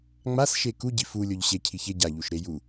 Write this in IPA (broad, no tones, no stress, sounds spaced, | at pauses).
ŋ͡m a s ʃ e k u ɟ i f u lʲ o ʎ ɕ e cʰ i ç e ɟ a ʎ u ʃ ɾ e j u